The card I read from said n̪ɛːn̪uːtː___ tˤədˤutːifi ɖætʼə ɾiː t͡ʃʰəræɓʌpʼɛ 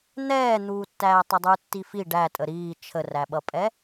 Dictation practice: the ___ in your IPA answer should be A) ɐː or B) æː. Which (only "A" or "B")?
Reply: B